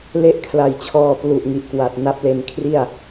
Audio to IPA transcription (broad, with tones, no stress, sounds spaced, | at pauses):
l e˦˥ ʔ kʰ l a˨˩ j t͡ɕʰ ɔː˧ p l u˨˩ ʔ ŋ i˨˩ ʔ k w a˨˩ t̚ n a˦˥ p̚ l e˧ n kʰ r i˥˩ a̯